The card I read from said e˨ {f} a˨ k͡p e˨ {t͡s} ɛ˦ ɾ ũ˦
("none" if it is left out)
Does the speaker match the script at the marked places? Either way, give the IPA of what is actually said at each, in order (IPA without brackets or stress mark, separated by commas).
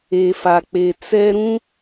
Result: f, t͡s